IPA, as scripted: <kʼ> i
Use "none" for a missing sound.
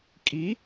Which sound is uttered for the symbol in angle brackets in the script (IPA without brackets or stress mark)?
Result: kʼ